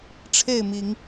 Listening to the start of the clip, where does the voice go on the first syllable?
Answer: falling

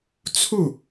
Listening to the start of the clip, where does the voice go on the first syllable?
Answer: falling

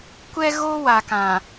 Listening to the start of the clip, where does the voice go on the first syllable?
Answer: high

